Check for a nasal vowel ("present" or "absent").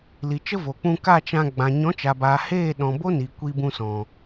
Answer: present